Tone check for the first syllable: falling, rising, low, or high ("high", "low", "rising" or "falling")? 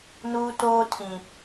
high